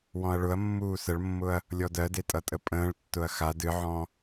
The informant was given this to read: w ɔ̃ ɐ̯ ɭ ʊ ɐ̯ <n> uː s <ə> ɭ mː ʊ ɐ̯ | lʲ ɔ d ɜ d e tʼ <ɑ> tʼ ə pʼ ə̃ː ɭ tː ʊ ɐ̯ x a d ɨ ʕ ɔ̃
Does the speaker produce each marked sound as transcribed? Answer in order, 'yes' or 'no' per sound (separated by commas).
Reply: no, yes, no